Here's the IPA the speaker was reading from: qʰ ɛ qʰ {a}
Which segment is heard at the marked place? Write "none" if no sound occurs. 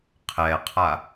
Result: a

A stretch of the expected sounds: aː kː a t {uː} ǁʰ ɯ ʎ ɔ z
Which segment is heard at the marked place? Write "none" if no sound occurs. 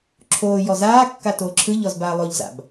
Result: oː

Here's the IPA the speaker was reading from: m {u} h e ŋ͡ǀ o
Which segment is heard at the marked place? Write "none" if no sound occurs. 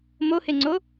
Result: o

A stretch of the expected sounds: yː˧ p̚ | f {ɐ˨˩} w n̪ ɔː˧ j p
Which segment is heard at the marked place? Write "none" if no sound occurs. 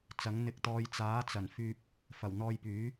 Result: ɐ˨˩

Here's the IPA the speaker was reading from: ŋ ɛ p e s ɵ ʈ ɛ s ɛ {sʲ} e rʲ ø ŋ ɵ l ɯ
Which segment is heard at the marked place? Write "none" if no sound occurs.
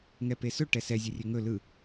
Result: zʲ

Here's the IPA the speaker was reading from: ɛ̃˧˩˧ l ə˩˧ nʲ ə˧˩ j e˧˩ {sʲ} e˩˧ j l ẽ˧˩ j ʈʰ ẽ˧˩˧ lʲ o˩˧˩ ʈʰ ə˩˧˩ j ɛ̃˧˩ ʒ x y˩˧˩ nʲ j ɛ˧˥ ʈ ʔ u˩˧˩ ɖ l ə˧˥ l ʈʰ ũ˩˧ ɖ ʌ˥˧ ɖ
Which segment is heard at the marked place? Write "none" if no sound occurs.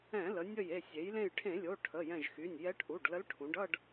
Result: sʲ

